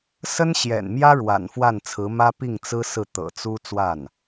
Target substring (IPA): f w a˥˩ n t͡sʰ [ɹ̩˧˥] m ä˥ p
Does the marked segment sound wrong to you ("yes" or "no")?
no